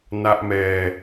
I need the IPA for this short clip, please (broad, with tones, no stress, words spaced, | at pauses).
na˦˥ʔmɛː˧